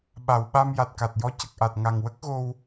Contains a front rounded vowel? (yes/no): no